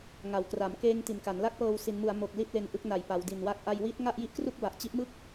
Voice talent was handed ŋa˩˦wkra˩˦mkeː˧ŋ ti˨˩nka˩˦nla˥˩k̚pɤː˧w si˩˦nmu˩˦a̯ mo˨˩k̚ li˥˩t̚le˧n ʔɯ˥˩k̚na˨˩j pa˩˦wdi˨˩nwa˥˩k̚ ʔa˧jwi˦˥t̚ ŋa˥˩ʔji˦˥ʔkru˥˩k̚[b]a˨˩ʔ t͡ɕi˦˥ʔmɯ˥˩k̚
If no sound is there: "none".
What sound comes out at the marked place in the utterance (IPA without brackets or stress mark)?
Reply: b